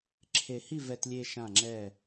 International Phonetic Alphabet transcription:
ǁʰ e˧ h i˥˧ v ɛ˧ t lʲ e˧ ʃ ã˧˩ ŋ͡ǁ ɛ˧˩

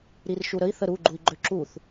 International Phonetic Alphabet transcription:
ɾ i r ʃ u ɾ ə i̯ θ ə ɾ u ɡ͡ǃ u i̯ ɡ͡ǃ ø ǁ u θ

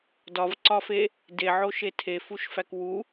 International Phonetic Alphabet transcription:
d ɒ v ǀ ɒ f e | d e ʕ o ʃ e tʰ e f u ʃ f æ k w u

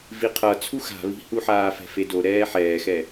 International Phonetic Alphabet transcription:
v i qʰ ʌ t͡sʰ u x a̤ β i̤ h u ħ aː f ɛ̤ f e d o ɾ ɛː ħ ɛː x ɛ

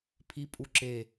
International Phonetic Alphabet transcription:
pʰ i pʼ u ǁ e

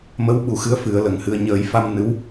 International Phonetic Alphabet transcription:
m ə˧˥ w ɓ u˨˩ x ɨ˧˥ ə̯ f ɨ˨˩˦ ə̯ l ə˨˩ ŋ h ɨ˧ ə̯ ɲ əː˨˩˦ j f a˧ m n ɨ˧˥ w

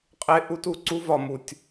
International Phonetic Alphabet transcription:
qʼ e˦ ʔ u˦ t u˨ ǀ u˦ v ɒ˨ m u˨ tʲ

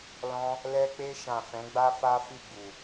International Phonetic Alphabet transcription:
l ɔ̃˦ | l ɛ˧ k͡p e˧ ʃ ã˨ f ɛ̃˨˦ ɡ͡b a˦ f a˦ f i˦˨ ɡ͡b u˨

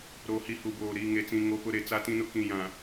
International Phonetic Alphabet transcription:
ɾ oː˨ h i˨ h u˨ b oː˨ ɾ i˨ ŋ e˨ t͡s ĩ˨ ŋ o˦ p ʊ˦ ɾ e˨ t͡s a˦ t ĩ˦ n ʊ˦ k ĩ˨ j ã˨

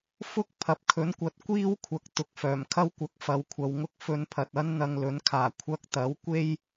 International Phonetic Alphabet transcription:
f ʊ˥ k̚ pʰ ɐ˨ p̚ kʰ ɵ˨˥ n kʷ ɐ˨˥ t̚ kʷ iː˥ w kʷʰ ɐ˨˥ k̚ t̪ ʊ˨ k̚ f œː˨˩ m kʰ ɐ˥ w kʷ ɐ˨˥ k̚ f ɐ˨˧ w kʷʰ ɐ˨˧ w ŋ ʊ˥ k̚ f ɵ˨˧ n pʰ ɐ˨ t̚ ɐ˥ n n̪ ɐ˧ ŋ l ɵ˨˥ n kʰ aː˨˩ kʷʰ ɐ˧ k̚ t̪ ɐ˨˥ w kʷ e˥ j

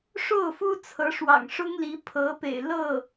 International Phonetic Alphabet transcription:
ʂ o˥˩ ʊ̯ f u˥ t͡sʰ ɤ˧˥ ʂ w ɑ̰˨˩ ŋ ʂ ʊ˥ ŋ l i˧˥ pʰ ɤ˧˥ p ḛ˨˩ ɪ̯ l ɤ˥˩

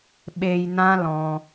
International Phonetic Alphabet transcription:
ɓ e˧ j n ã˦ l ɔ̃˧

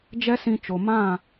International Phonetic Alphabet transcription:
d͡ʒ ɛ˦ s ĩ˧ t͡ʃ o˨ m ã˦˨

